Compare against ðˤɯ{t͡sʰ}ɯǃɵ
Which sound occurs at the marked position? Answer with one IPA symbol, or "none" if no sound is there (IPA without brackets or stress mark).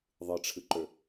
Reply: ʈ͡ʂʰ